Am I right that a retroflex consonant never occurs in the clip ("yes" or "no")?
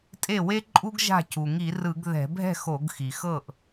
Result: yes